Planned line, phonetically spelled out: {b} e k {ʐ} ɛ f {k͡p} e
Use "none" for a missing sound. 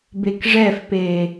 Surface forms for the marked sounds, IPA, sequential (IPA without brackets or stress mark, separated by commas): b, ʐ, p